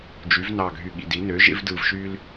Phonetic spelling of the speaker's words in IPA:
d͡ʒ y˩˥ v n ɑ˧˩ ɡʱ y˧˩ ɠ ḭ˧˩ d i˩˥ n ø˩˥ ʒ ḛ˦ v d ɯ˧˩ v ʃ y˦ l

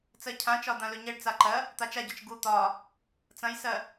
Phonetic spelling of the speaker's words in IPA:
t͡s ɜ cʰ ã t͡ʃ ɒ d̪ ã l ɵ ɲ ɛ ɖ t͡s a ǃ ɜ | t̪ a t͡ʃ a ɟ ɒ t͡ʃ ɡ u t̪ ɒ | t͡s ɐ̃ j s ɜ

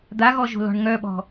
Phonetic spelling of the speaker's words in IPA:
d̪ a ɣ ɔ ʒ o̤ l ɔ̤ ɳ ŋ œ ɓ ɔ̤

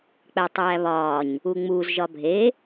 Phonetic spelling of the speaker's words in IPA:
k͡p æ tˤ æː β ɒː ɲ | u ŋ͡m u z ʒ ɒ bʱ e

